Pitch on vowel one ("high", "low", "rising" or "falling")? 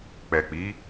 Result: low